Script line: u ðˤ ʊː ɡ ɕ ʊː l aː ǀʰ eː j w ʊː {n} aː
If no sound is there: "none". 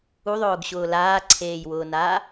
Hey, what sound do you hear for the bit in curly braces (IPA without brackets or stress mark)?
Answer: n